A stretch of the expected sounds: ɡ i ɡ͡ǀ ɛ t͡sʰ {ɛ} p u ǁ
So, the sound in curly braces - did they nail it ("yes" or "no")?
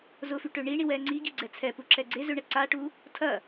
yes